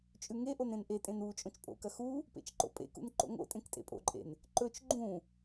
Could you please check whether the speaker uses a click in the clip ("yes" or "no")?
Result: yes